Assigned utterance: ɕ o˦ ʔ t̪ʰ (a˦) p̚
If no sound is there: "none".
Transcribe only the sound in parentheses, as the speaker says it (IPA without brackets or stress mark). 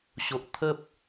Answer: ə˦